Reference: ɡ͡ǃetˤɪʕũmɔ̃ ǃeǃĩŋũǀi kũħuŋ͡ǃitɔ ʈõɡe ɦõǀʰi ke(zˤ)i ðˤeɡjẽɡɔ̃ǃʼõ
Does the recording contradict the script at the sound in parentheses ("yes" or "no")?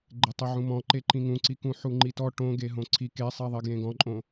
yes